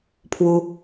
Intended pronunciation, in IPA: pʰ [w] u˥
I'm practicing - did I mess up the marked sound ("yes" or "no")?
no